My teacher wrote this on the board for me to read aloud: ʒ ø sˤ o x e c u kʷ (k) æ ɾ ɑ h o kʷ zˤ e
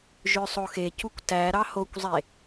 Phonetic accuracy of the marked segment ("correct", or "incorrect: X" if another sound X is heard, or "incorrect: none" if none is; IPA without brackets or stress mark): incorrect: t